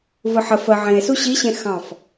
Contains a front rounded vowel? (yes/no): no